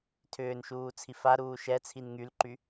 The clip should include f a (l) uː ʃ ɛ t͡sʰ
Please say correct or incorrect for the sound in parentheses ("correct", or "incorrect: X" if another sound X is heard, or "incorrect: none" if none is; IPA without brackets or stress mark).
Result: incorrect: ɾ